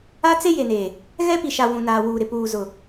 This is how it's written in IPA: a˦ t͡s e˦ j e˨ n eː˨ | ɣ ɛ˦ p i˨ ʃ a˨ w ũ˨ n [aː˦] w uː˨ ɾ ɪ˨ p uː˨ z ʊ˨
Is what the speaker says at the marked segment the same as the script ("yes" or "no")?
no